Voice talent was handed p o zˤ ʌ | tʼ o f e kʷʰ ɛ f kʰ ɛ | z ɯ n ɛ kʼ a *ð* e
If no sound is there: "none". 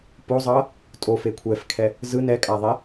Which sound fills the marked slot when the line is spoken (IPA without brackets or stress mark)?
ðˤ